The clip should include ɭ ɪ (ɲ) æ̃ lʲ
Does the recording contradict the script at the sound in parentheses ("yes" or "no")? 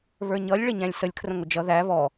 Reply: no